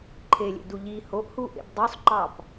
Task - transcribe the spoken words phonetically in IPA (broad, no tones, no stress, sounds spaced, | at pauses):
ǃʰ e lʲ ḛ d u ʎ i h o ʔ h u ʔ ḛ b dˤ u sˤ ǃ ɑ p